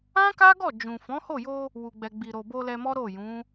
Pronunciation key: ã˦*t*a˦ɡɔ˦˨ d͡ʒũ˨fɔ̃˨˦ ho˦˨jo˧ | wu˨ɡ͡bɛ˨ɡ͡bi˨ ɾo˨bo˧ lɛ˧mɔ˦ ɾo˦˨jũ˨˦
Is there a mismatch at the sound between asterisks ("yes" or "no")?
yes